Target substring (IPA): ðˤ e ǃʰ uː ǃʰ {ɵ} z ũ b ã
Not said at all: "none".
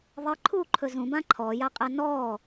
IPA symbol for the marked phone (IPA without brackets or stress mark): ɵ